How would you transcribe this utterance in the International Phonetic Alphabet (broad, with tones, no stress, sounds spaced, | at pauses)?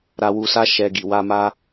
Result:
ɾ a˧ w u˧ s a˦ ʃ ɛ˧ ɡ i˨ w a˧ m a˦